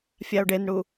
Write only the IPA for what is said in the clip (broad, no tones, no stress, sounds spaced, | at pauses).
fʲ a o̯ ɖ e n ɽ u